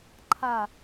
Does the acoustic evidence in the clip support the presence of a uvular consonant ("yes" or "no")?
no